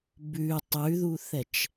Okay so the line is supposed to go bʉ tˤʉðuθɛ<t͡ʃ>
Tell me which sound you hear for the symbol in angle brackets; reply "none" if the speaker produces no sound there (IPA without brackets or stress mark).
t͡ʃ